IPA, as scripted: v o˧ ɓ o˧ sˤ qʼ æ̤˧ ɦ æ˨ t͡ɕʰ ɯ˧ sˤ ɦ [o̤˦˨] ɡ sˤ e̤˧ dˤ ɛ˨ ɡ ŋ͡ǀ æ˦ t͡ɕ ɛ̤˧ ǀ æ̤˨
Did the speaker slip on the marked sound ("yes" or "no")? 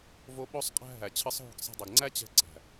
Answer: no